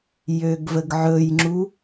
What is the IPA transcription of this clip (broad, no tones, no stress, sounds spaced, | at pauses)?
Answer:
j ø ɡ v ə ɡ ʕ ɵ j ŋ͡ǁ u